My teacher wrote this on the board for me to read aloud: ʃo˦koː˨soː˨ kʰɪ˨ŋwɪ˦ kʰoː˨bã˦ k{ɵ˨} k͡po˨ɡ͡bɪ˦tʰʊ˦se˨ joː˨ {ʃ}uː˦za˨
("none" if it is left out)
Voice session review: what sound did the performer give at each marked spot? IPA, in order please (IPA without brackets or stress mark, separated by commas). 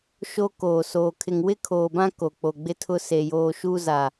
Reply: o˨, ʃ